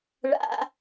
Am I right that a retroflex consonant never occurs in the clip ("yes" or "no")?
no